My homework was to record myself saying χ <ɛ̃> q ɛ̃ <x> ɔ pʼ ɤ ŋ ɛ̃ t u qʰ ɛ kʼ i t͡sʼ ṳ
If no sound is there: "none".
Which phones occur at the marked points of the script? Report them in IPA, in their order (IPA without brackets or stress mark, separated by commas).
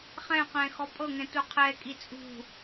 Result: ɛ̃, x